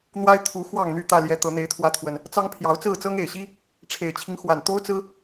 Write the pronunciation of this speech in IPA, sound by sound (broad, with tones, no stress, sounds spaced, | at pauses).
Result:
n̪ w a˦ ɪ̯ t̪ʰ u˨˦ x w ɑ˥˨ ŋ n̪ y˥˨ t̪ ä˥˨ l j ɛ˨˦ t̪ ɤ˨˦ n̪ e˨˦ ɪ̯ t̪ʰ w ä˨˦ t̪ʰ w ə˨˩ n | t͡s ɑ˦ ŋ pʰ j ɑ˨˦ ʊ̯ t͡s ɹ̩˥˨ t͡s ɤ˦ ŋ e˨˩ ɪ̯ ɕ i˦ | ʈ͡ʂʰ e˨˩ ɪ̯ t͡ɕʰ i˦ ŋ x w a˨˩ n t̪ o˦ ʊ̯ t͡s ɹ̩˦